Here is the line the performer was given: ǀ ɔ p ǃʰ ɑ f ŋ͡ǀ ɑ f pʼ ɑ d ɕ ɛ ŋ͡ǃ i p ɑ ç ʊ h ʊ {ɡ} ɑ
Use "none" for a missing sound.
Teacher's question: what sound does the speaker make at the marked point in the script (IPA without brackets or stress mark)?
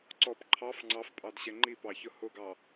ɡ